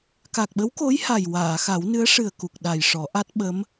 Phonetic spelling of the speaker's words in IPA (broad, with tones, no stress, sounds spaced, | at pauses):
k a˨˩ k̚ ɓ ə˧˥ w k o˧˥ j h a˨˩ j w aː˨˩˨ x a˨˩˦ w n ɨ˧˥ ə̯ ʂ ɨ˨˩ ə̯ k u˨˩ k̚ ɗ a˨˩ j ʂ ɔ˨˩˦ ʔ a˦˥ t̚ ɓ ə˧˥ m